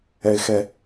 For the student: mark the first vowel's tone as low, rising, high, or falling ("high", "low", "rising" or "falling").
high